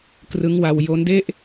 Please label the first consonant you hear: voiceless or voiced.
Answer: voiceless